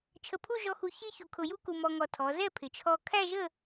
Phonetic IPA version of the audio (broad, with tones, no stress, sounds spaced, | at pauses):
t͡ʃʰ ə˧˩ pʰ u˥˧ ʒ ɔ˧ x u˧ ç i˥ ç u˧ kʰ ʊ˧ j u˥ k u˧ m ɔ˧ ŋ ɔ˧˩ tʰ ɔ˩˧ z ɛ˥˧ pʰ ɪ˩˧ t͡ʃʰ ɔ˧ kʰ æ˥˧ ʒ ə˥˧